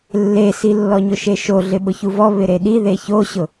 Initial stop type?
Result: implosive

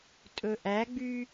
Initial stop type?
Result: ejective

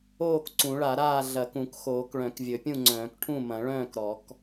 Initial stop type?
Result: plain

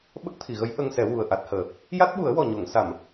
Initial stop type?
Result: implosive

